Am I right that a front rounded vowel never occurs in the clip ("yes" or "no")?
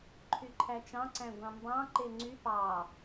no